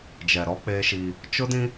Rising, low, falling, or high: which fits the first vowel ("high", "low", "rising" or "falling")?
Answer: low